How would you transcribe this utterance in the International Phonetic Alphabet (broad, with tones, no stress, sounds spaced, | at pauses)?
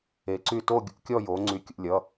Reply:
e˩˥ ǀ y˧˩ t o˥˧ ɡʲ ṵ˩˧ kʲ ɔ˥˧ j o˩˧ ŋ͡ǀ y˩˥ kʲ ṵ˧˩ lʲ ʌ˩˧˩